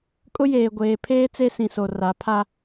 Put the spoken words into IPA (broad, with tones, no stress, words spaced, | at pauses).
kʼʊ˦jeː˨ɡʷeː˨ pʰeː˦ t͡se˦sĩ˨so˨ ra˨˦ pʰa˦